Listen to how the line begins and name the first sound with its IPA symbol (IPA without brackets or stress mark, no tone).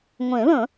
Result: ŋʷ